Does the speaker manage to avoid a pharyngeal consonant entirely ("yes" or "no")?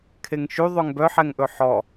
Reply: no